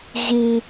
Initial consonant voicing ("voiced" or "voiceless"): voiced